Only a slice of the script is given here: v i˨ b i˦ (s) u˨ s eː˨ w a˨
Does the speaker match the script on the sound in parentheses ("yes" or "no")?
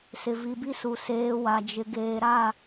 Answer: yes